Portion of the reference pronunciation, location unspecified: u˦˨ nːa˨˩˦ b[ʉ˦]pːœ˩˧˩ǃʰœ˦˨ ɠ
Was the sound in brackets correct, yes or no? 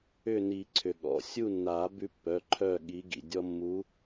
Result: yes